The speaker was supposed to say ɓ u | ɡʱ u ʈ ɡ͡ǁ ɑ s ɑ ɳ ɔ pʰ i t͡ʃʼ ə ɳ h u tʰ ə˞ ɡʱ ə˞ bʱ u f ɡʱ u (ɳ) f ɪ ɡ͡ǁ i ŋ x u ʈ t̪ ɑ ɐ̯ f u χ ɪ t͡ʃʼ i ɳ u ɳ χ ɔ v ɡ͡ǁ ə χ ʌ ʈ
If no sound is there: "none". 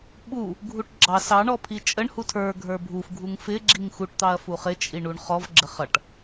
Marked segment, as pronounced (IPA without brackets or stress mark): ŋ